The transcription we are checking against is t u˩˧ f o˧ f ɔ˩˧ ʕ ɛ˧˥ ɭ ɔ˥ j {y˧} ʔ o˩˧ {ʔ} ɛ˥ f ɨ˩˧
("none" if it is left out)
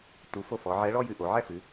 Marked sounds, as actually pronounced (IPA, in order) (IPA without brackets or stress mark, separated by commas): ɨ˧, ʕ